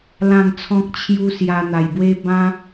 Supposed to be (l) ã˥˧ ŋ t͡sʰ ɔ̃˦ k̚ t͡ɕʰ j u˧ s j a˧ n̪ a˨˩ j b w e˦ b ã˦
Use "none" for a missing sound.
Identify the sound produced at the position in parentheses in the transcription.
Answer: l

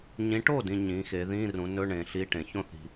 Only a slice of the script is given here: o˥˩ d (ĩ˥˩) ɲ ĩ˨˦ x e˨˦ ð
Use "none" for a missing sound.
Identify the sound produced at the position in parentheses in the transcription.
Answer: ĩ˨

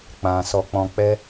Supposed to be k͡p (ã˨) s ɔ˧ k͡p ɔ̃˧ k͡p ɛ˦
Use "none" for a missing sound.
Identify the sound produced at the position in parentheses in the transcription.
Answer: ã˨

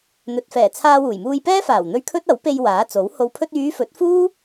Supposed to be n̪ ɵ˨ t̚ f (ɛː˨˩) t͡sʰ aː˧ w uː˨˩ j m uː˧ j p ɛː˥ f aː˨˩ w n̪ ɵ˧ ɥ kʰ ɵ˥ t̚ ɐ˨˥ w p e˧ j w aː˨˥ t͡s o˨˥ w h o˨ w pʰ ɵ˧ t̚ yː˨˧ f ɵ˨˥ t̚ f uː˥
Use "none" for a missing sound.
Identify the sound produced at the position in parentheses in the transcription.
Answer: ɛː˨˩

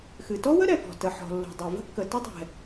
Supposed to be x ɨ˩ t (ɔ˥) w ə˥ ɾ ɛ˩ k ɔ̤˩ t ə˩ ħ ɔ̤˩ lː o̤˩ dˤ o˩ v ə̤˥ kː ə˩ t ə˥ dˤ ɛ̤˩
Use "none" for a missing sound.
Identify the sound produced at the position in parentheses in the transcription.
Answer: ɔ˥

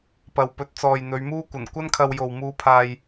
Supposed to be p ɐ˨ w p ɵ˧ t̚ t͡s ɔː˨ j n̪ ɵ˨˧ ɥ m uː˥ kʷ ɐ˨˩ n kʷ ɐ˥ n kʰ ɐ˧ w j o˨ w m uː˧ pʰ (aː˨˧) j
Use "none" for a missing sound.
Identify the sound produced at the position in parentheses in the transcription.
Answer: aː˧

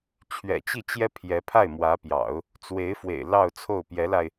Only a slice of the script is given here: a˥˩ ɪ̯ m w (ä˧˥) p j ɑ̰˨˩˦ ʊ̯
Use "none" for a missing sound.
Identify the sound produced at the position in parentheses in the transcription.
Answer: ä˧˥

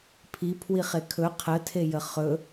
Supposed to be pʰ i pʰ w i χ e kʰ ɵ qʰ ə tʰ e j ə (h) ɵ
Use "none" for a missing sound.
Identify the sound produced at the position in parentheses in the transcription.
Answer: χ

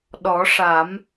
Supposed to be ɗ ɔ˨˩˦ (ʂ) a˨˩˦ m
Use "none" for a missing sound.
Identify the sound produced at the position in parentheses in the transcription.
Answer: ʂ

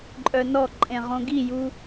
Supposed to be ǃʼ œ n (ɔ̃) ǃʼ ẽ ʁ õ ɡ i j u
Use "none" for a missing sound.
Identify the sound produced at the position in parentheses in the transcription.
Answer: ɔ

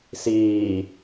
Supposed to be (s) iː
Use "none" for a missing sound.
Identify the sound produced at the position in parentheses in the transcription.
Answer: s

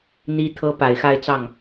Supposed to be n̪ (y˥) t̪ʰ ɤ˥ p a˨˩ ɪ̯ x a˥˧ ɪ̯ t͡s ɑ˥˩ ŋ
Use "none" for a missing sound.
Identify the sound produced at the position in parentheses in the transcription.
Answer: i˥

